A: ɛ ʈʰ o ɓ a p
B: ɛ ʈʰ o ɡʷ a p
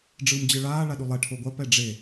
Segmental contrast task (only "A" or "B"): B